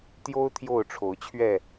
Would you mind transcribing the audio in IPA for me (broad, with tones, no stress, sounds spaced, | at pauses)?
t̪ j o˦ ʊ̯ t̪ʰ j o˥˨ ʊ̯ ʈ͡ʂʰ o˨˦ ʊ̯ t͡ɕʰ ɥ ɛ˥˨